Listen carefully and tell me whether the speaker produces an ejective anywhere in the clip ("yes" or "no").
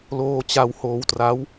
no